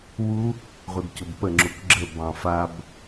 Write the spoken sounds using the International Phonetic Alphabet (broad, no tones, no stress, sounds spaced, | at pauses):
w u | ʁʷ ɯ d c o b p ə ŋ͡ǁ u k ɡ͡ǁ ə b ɑ̃ f a b